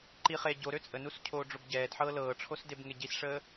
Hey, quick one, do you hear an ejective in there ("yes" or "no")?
yes